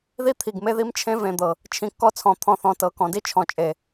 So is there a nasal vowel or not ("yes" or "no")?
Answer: yes